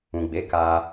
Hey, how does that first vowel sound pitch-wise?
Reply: low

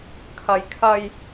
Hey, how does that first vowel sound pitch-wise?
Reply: high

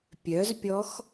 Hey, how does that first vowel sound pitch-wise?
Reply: rising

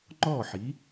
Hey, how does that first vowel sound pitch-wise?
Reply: falling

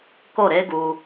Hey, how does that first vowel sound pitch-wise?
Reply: falling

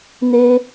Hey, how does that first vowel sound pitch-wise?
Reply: high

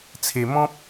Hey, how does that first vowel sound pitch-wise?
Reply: low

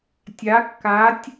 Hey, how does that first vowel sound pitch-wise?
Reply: rising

